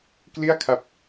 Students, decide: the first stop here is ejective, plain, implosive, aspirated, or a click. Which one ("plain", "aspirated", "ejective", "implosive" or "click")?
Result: plain